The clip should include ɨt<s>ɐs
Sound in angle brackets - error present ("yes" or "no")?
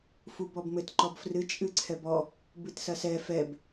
no